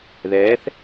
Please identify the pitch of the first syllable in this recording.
rising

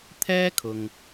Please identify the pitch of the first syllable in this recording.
high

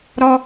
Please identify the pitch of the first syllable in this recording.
high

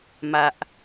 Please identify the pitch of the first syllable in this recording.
low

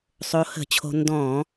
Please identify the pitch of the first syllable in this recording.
rising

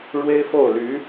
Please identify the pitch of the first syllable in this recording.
high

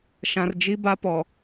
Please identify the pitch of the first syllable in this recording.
low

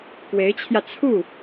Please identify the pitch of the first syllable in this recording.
rising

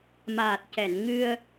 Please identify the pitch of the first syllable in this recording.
low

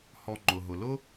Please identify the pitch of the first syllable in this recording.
low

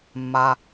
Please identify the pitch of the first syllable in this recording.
low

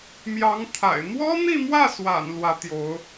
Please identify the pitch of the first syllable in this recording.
rising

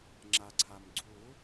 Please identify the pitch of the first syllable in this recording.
low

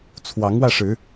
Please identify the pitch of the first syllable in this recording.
rising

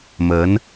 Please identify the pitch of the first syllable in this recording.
rising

